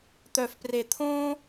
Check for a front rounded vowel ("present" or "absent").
present